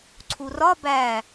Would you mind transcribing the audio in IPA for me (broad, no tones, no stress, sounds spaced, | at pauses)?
ǀʰ u r ɒ b æ